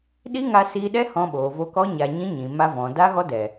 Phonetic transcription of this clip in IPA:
ɗiː˦ŋa˧siː˧ɗɛ˦ hɔ̃˧ɓoː˨vo˧kɔ˦ ɲa˧ ɲĩ˦ɲĩ˨ ma˧vɔ̃˨ da˦ ɣɔ˦dɛ˨

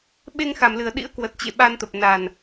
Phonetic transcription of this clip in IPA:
ɓe˧ŋxa˨˩mlɨ˨˩ə̯ɗḭ˧˥ə̯ kwə˨˩t̚t͡ɕḛ˧˨ ɓa˧nt̪ə˨˩p̚ na˨˩n

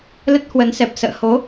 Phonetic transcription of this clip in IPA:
lə˦˥t̚hwə˨˦nsɛ˨˩p̚ sə̰ː˧˨ ho˨˦

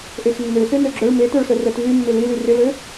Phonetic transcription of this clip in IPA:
ʔexnːø sønøɡ͡ǁœɭ metœɭsœ rœtvy mːɪlily rɪlø

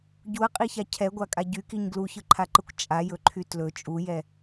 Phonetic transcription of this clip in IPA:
ɟuɐ̯qʼiça cʰɛɡʷakʼa ɟykiɲ ɡluçɯǃʰaǃɯkʷ t͡ʃʼajɵǃʰy tlɵ t͡ʃʼujɛ

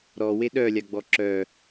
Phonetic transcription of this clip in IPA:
ɾɔwe ɗœlʲaɡ͡bɔ ǁœ

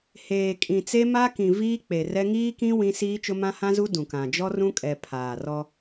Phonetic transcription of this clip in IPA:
heː˨ kʼĩ˨t͡se˦ma˦kĩ˨ viː˦k͡pe˨rɛ˦ ŋiː˦kĩ˦ wĩ˦ siː˦t͡ʃʊ˦ mã˦hã˦zu˦ dũ˨kã˨ d͡ʒɔ˦rũ˦kʼɛ˨ pʰaː˨rɔ˦

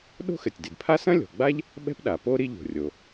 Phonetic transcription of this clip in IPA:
ɗo̤˥xɘ˩tʲdi˩dpʰa˥ sɐ̃˥lʲɔ̤˩ɡ͡ba˥ʎ | ɓɛ̤˥pɗa˩po˥ ɾi˥ʎo̤˩rʲo˩

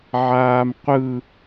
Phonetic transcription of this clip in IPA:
ʕaːmqʷɯ

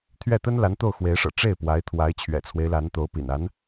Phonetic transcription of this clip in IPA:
t̪ʰɥɛ˥˩t̪ə˥n la˧˥n t̪o˥˩ʊ̯xwe˧˥ɪ̯ʂɤ̰˨˩ ʈ͡ʂe˥˩ɪ̯pwa˧˥ɪ̯t̪ʰwa˧˥ɪ̯ t͡ɕʰɥɛ̰˨˩t͡sʰwe˦ɪ̯la˧˥nt̪o˧˥ʊ̯ pḭ˨˩na˧˥n

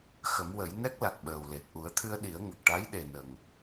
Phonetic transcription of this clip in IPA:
xə˨˩˦mwə˨˩˦j nɛ˦˥k̚la˨˩k̚ɓəː˨˩wle˨˩t̚ ʔu˨˩˦ə̯t̪ʰɨ˧ə̯ɗi˨˩˦ə̯ ŋə˨˩k̚ʈa˧˥jɗe˨˩ nə˨˩ŋ

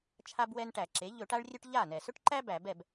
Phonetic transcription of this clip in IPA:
t͡ʃʰa˦bwɛ˦nʈæ˧˩˧ǁe˩˥ ʎɵ˧˩˧ʈa˦ɭrʲɵ˦ʈ ʎa˥˩nɛ˩ sɵ˦ʈǃæ˦ bæ˧˩˧bɛ˥˩b

